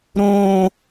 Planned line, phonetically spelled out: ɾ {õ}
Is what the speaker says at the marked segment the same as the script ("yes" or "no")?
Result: yes